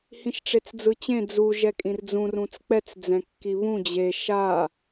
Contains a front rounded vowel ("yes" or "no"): no